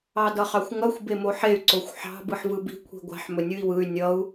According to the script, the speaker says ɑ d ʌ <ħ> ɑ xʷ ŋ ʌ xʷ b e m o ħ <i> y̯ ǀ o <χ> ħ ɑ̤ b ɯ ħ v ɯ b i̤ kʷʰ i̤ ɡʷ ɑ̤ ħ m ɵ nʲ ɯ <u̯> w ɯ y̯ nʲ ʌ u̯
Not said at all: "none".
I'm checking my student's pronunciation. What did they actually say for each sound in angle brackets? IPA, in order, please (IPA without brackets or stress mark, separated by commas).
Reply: χ, e, xʷ, i̯